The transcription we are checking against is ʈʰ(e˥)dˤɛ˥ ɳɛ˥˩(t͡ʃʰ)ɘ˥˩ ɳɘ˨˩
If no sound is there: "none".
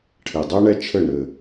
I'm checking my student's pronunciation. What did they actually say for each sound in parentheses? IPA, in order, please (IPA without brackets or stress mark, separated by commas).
e˨˩, t͡ʃʰ